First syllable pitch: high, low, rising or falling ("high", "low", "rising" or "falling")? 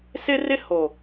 high